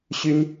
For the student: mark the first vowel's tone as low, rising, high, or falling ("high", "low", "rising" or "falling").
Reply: high